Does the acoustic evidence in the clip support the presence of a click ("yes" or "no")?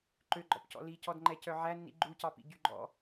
yes